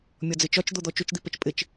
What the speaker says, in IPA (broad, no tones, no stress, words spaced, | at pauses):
mʲɒd͡zɪt͡ʃɒt͡ʃ d̪od̪ɔt͡ʃot͡ʃ d̪ipɛt͡ʃpʼɪt͡ʃ